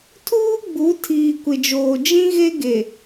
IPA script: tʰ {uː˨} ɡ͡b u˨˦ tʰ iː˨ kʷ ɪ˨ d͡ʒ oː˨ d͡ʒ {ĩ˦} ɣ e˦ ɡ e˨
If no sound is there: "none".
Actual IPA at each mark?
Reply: uː˦, ĩ˦

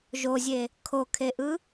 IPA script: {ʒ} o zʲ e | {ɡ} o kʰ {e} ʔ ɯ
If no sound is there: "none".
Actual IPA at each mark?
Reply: ʒ, kʰ, e

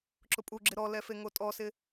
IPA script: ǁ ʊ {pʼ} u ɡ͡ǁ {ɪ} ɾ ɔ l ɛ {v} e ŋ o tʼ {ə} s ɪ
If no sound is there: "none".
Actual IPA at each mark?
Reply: pʼ, ɪ, f, ɔ

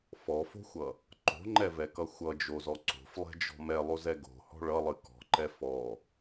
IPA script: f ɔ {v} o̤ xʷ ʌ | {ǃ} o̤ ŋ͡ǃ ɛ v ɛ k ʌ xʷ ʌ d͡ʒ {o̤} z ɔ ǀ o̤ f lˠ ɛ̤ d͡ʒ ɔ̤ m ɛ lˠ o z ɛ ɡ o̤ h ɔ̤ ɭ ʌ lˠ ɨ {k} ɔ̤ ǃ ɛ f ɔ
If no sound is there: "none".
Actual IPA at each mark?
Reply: f, ǃ, o, k

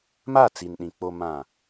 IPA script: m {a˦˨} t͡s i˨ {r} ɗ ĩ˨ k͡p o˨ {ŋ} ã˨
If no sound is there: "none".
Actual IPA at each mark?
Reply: a˦˨, n, m

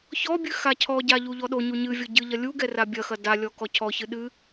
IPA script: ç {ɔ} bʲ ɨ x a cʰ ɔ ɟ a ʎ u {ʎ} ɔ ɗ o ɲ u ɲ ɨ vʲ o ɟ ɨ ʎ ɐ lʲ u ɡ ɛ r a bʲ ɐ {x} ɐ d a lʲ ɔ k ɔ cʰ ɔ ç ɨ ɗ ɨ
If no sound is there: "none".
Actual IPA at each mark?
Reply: ɔ, ʎ, x

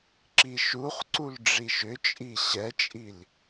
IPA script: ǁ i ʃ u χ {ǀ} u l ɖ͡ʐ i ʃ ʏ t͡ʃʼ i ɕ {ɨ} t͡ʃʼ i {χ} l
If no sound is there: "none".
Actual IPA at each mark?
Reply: ǀ, ɛ, none

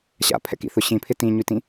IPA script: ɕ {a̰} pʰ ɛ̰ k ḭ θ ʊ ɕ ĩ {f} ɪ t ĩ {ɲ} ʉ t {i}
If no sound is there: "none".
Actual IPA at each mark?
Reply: a̰, pʰ, ɲ, ĩ

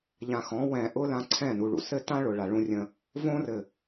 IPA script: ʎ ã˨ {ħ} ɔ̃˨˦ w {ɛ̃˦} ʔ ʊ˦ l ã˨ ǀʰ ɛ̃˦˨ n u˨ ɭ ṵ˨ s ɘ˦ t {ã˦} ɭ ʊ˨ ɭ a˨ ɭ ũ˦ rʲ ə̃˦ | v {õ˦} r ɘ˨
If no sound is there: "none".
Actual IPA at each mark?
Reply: x, ɛ̃˨, ã˦, õ˦

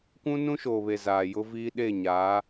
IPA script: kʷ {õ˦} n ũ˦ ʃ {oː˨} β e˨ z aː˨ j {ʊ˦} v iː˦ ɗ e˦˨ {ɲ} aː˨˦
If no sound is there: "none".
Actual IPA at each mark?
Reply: ũ˦, oː˨, ʊ˦, ɲ

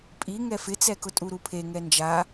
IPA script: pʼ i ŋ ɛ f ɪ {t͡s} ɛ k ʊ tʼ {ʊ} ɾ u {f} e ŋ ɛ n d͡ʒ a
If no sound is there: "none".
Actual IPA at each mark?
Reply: t͡s, u, pʰ

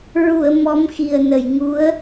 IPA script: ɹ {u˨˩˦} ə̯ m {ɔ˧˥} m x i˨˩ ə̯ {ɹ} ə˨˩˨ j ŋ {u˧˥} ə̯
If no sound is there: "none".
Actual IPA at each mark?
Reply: u˨˩˨, ɔ˧˥, n, u˧˥

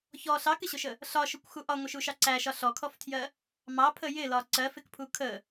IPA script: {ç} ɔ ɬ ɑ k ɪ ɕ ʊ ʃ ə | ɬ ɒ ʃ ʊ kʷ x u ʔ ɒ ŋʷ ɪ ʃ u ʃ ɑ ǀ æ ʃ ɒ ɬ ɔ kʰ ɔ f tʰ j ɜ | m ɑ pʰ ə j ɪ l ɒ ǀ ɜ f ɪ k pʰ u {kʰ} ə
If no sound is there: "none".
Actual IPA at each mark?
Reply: ç, kʰ

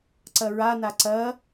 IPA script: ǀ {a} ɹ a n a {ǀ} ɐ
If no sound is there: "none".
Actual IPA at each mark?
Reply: ɐ, ǀ

